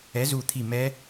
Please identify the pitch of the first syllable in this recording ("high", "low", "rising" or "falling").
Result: rising